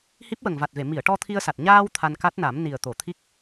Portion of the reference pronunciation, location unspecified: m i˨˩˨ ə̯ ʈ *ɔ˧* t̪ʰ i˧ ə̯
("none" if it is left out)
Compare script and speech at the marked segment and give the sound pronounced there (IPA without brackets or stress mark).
ɔ˧